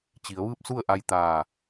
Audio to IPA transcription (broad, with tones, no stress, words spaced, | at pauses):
t͡ɕi˩˧ə̯ʋɯː˥˨p̚su˥˨ə̯ ʔa˧jt̪aː˧˩